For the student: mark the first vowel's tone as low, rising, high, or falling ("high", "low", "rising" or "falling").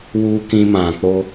high